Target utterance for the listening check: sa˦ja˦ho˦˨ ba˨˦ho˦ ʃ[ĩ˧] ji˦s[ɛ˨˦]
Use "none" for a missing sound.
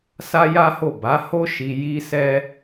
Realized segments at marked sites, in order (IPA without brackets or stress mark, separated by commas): i˧, ɛ˦